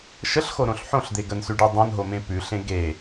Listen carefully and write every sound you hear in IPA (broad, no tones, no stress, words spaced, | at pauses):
ʃəɬxoɾõɬ ħõɬd̪e ɡənsʉɖʉ dˤõnɦomẽ pʉɬẽ ɡe